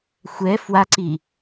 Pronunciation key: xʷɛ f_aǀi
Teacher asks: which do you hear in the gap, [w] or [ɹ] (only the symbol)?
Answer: w